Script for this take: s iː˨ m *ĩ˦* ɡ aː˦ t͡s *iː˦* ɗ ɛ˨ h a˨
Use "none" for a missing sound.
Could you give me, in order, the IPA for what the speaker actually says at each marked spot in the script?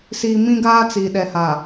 ĩ˦, iː˨

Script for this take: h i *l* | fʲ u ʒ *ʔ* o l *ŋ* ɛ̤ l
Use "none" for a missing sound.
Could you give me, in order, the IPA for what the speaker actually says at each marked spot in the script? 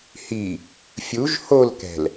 none, h, k

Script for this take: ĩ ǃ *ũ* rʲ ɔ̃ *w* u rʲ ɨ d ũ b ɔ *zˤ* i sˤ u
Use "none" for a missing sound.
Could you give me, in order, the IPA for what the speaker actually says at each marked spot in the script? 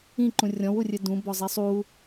ũ, w, zˤ

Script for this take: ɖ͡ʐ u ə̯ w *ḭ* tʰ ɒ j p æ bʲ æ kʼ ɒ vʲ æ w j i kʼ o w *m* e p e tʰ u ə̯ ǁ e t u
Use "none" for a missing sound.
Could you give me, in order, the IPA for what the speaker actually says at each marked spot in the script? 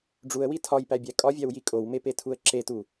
i, m

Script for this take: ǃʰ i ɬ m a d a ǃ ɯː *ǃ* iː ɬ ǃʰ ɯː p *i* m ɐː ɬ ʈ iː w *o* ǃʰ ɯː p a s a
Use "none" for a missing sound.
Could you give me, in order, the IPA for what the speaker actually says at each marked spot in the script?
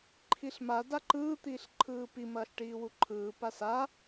t̪, i, u

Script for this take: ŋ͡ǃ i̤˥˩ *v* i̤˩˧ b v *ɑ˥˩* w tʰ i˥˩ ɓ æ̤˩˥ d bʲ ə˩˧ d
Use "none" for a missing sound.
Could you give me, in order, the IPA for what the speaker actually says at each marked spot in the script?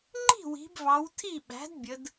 w, ɑ˩˧

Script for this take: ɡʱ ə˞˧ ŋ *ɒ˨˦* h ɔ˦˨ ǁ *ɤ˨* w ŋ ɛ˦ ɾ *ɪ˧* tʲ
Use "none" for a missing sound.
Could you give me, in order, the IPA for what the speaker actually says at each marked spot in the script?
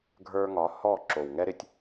ɒ˨˦, o˨, ɪ˧

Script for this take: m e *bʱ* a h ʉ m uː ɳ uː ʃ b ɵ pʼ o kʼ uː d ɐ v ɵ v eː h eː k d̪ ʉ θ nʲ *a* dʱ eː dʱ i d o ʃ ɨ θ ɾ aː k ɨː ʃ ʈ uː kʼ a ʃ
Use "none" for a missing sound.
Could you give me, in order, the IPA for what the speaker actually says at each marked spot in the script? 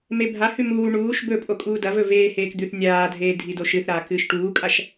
bʱ, aː

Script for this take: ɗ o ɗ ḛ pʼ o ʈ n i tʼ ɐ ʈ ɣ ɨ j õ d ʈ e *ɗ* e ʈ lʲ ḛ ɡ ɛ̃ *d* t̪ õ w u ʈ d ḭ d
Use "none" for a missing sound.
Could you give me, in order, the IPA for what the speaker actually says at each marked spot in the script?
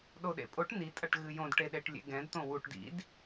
ɗ, d

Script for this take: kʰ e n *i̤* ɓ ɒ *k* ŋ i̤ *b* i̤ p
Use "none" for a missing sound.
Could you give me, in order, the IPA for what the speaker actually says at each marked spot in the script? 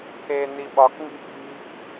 i, k, b

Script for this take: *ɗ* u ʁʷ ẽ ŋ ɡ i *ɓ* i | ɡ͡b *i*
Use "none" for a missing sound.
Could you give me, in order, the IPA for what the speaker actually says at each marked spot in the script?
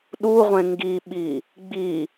ɗ, ɓ, i

